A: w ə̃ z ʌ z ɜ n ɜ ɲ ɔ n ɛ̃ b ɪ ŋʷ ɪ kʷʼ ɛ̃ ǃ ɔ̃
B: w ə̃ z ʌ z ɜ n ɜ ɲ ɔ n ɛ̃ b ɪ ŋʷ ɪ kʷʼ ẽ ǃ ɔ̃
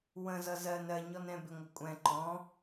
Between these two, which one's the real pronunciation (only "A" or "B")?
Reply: A